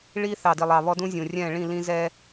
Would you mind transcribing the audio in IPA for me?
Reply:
ɭ i˦ θ ɑ˨ d i˨ lˠ ɑ˨ β ɔ˦ d ũ˦ zʲ ũ˨ rʲ ɛ̃˦˨ ɭ ĩ˦˨ l ĩ˦ z ɛ˦

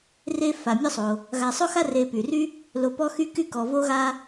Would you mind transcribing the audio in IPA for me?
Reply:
r e˦ f a˩ mʲ ɔ˦ sˤ o˩ | ɣ a˨ sˤ o˥ x a˥ r e˨ p y˩ r y˥ | l o˨ p ɔ˦ x y˦ k y˦ k ɔ˨ v o˥ ɣ a˥

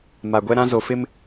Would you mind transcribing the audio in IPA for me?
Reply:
m a˨ ɡʷ ɛ˦ ɾ ã˦ z o˨ f ɪ˦ m

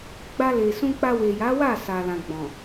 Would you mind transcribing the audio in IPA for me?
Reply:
ɡ͡b a˧ l e˨ s ũ˧ k͡p a˧ w e˨ j a˨˦ w a˦˨ s a˨ l ã˨ ɡ͡b ɔ̃˨

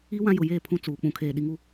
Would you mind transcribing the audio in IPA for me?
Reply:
i˦ w ã˦ j ʊ˨ j eː˦˨ pʰ ũ˦ t͡s uː˨ k͡p ũ˨ kʰ eː˨ ɗ i˨ ŋ u˦

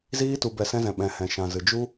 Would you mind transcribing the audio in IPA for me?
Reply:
z iː˧ t u˨ b ɛ˨ s ɛ̃˧ z ɛ̃˨ ɓ ɛ̃˨ h ɛ̃˨ ʃ ã˨ z ɨ˨ d͡ʒ u˦

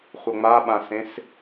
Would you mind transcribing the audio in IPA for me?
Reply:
χʷ ɤ ŋ͡m a ɓ ã s ẽ s

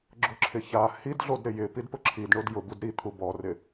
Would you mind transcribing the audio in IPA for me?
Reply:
ɡ͡ǁ ʊ ǁʰ ɪ ç a h i d ɮ o d ɾ ɪ j ɪ p i d p ʊ ǁʰ i d ɳ o d j ʊ b u d ɾ i t̪ʰ u b ɔ r ɪ

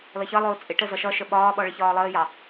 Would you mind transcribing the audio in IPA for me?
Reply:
l ʌ ç ʌ lˠ ʊː t͡sʼ ɪ ʈ ə z ʌ ʃ ʌ ʃ ə ɓ ɒː ɓ ɔ ɭ ɪ ç ɒː lˠ əː j ɑ

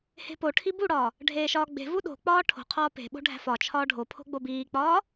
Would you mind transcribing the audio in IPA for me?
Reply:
h e̤ p o ʈʰ i b u ɽ ɒː | ɖʱ eː ʃ ɒː ɡ͡b e̤ v u ɗ o̤ k͡p ɒː ʈʰ o̤ qʰ ɒː p e̤ ɓ o̤ ɖʱ æ̤ f ɒ t͡ʃʰ ɒː ɖʱ o pʰ o̤ ɡ͡b o b iː k͡p ɒː

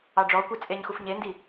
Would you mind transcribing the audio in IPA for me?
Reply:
ɑ ɖ͡ʐ ɔ kʷ e t͡sʼ e ɲ x u f ɲ e n d i

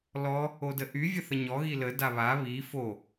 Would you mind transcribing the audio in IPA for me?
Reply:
l ɔ | o d ə ʔ y vʲ ə θ ə ɲ ɔ ɣ i l ə d a β a β i f o

